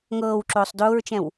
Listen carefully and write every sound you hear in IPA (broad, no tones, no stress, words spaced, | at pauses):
ŋɤːwǁʊːsˤ dʊːɹt͡ʃɛ̃w